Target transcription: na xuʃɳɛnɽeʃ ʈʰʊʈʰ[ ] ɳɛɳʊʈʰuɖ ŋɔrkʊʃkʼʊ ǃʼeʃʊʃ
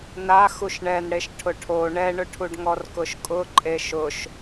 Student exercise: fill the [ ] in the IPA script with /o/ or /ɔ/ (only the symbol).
o